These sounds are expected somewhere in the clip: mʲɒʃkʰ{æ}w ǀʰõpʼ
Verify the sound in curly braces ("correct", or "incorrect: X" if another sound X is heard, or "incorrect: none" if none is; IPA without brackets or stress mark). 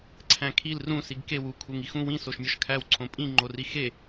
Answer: correct